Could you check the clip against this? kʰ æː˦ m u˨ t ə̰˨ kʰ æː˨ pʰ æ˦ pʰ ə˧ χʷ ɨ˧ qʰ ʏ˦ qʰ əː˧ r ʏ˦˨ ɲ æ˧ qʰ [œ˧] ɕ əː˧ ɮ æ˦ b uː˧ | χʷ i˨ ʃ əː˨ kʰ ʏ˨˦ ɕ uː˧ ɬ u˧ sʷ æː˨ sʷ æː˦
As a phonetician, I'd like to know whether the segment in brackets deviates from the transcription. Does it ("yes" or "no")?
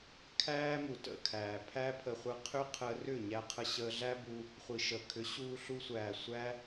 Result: yes